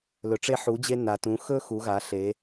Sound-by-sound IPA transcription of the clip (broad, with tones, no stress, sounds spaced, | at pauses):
l ɵ˩ ʈ͡ʂ e˧ ħ u˩˧ d͡ʑ e˧ n a˩ t ũ˩˧ x ɵ˥ x u˩˧ ɣ a˩˧ ɬ e˩˧